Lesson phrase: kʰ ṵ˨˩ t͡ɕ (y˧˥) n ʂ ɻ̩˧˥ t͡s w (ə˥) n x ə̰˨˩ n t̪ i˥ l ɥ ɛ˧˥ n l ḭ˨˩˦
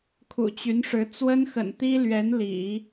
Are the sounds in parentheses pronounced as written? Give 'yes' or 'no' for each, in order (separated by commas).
yes, yes